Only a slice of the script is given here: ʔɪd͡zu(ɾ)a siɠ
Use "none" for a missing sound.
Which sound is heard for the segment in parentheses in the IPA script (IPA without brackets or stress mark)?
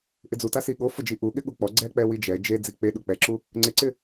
t